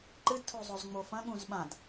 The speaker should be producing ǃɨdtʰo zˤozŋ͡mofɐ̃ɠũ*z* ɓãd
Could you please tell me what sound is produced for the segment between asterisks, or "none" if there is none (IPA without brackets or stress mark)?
z